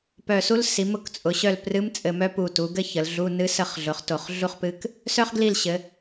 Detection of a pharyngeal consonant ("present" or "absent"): absent